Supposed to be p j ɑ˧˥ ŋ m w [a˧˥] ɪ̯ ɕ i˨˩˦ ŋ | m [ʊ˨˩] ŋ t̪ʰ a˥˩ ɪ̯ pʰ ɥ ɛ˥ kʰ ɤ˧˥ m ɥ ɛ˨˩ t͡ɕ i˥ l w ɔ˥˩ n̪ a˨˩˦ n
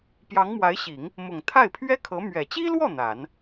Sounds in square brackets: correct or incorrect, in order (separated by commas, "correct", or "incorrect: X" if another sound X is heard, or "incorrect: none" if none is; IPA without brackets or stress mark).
correct, correct